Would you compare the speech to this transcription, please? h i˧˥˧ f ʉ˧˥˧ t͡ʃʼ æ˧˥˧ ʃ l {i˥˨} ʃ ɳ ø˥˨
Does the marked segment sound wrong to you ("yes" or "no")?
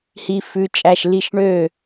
no